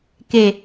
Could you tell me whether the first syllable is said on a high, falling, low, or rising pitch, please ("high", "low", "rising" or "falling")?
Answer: low